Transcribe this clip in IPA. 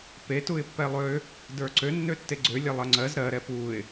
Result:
p e t u ɪ̯ pː ɛ lˠ ø | d ə˞ ǀ ø nː ø tː e ɡ͡ǀ ø lʲ ɛ lˠ ɜ ŋ͡ǀ ɜ z ɾ ɜ ɾ ɛ p u ɪ̯

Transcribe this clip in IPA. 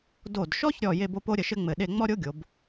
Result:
d o˧˩ d ʃ ɔ˥ ç ɾʲ ɔ˧˩ j e˥˧ b o˥ p o˥ ɾʲ ə˧ ʃ ɘ˥ ŋ͡m ɘ˧˩ ɗ e˥˧ ŋ͡m ɔ˥ ɾʲ o˥ ɡʲ o˩˧ b

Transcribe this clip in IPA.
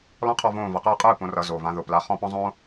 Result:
l ɔ̃˦ qʰ ɔ˦˨ v õː˦˨ v ʌ˩˧˩ q ʌː˦˨ qʼ ɯː˦˨ p õ˨˦ r ʌ˨˦ z o˩˧˩ v ã˨˦ ð ʊ˩˧˩ p l a˨˦ χ ɔ̃˦˨ p ɔ̃˦ zˤ õː˦

